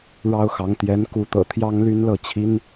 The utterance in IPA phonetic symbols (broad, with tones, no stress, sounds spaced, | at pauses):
ɻ ɑ˥ ʊ̯ x ɑ˧˥ ŋ t̪ j ɛ˧˥ n k u˧˥ t̪ ɤ̰˨˩ t̪ʰ j ɑ˥ ŋ l y˥ n l ɤ˥˩ t͡ɕʰ i˥ n